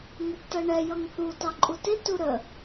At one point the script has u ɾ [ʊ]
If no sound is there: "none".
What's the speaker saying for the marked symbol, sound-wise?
ə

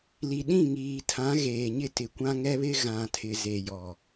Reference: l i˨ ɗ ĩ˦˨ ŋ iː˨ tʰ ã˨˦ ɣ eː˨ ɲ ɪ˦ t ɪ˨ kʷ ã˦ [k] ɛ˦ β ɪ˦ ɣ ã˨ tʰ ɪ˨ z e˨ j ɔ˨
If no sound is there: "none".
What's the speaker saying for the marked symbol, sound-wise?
ŋ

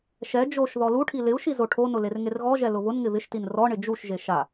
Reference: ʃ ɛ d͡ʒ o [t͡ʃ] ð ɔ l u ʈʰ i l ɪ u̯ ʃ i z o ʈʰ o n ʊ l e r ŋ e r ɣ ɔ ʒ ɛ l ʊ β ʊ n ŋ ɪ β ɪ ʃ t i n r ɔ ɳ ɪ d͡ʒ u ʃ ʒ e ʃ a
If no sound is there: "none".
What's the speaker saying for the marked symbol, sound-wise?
ʃ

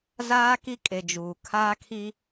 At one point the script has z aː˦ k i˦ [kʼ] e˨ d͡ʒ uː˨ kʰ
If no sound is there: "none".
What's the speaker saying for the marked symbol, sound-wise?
kʼ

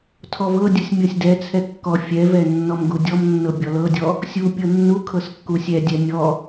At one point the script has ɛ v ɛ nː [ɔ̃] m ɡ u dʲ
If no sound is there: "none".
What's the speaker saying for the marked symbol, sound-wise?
ɔ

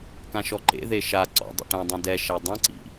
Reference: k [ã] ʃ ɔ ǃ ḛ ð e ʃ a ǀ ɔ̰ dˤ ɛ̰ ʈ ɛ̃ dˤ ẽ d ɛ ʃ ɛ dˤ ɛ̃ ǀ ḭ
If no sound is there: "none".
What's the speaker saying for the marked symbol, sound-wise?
ã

